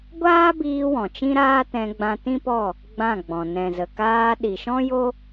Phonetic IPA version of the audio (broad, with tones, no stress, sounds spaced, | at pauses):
ɡʷ aː˦ b iː˧ w ɔ̃˨ t͡ʃ ĩ˦ ɾ aː˦ t ɛ̃˧ ɡ͡b ã˧ t ĩ˦ p ɔ˦˨ | ɡ͡b ã˦˨ ɡ͡b ɔ̃˨ n ɛ̃˨ z ə˨ k aː˧ ɗ i˨ ʃ ɔ̃˦ j o˦